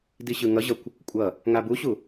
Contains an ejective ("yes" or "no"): yes